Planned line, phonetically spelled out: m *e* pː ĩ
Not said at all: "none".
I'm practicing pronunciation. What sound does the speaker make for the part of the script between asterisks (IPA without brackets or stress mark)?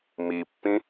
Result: i